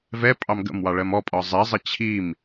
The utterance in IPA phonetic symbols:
v ɛ pʼ ɑ m ɡ ə̰ m w ɑ ɭ ɜ m ɔ pʼ ɒ zˤ ɛ zˤ ə t͡ɕʰ i m

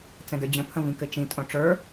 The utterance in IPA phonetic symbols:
t͡s ɛ̃ d ə˞ d͡ʑ ə̃ pʰ ə̃ v ĩ k ɘ t͡ʃ ĩ tʼ õ ʈ͡ʂ ə˞

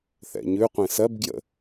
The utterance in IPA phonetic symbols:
θ ɛ̰ ɲ ʉ qʷ ẽ s ɜ b ɡ j ə̰

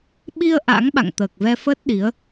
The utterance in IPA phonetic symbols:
ɓ i˧ ə̯ ʔ a̰˧˥ ŋ ɓ a̰˧˨ ŋ t̪ əː˨˩ k̚ v ɛ˧ f əː˦˥ t̚ ɗ i˨˦ ə̯

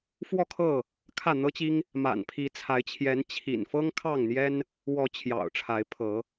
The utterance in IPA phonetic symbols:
f w ɔ˥˨ kʰ ɤ˥˨ | kʰ ä˥˨ n̪ ɤ˦ t͡ɕ i˦ ŋ | m a̰˨˩ n pʰ i˨˦ t͡sʰ a˨˦ ɪ̯ t͡ɕʰ j ɛ˨˦ n t͡ɕʰ ḭ˨˩ n f ɤ˦ ŋ kʰ ɑ˥˨ ŋ n̪ j ɛ˦ n | w ɔ˨˦ t͡ɕʰ j ɑ̰˨˩ ʊ̯ ʈ͡ʂʰ a˨˦ ɪ̯ pʰ ɤ˨˦

